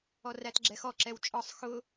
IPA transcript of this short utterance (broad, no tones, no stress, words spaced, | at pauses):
ɔrætɡ͡ǁɛxɔ ǁɛwt͡ʃʼɒsˤ xʊ